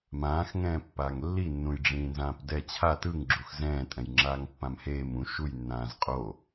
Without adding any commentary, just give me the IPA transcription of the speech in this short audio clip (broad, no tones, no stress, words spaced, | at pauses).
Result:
mãːxŋɛ̃ː pːaːŋlːinːũj ɖ͡ʐĩːnzãːpdɛ t͡ɕʰa tɯŋɡ͡ǁux zɛ̃ːtʼɛ̃jŋ͡ǁaːŋ pːãmheːm ũ ʃujnːãːz qʼo